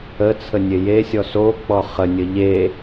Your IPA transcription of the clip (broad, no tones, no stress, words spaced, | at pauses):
ə t͡sʰənʲejesʲɔ sok͡pɔ χənʲə ʎe